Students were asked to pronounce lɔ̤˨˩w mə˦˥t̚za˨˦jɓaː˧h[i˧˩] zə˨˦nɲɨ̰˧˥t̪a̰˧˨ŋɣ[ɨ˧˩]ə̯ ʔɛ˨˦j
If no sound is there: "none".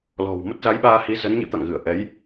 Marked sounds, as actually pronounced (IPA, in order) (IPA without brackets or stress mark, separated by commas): i˨˦, ɨ˧˩